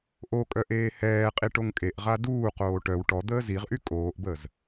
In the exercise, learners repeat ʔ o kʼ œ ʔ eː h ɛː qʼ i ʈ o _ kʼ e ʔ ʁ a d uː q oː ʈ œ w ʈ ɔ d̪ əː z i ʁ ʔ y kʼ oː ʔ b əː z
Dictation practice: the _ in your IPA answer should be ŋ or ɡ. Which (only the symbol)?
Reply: ŋ